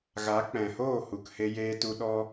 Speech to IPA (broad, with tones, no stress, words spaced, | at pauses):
ɣa˨˦k͡pɛ̃˨hoː˦˨hu˨k he˧jeː˧tu˧ɗɔ˦